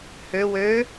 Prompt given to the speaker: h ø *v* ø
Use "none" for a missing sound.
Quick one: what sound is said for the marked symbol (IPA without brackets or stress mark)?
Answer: w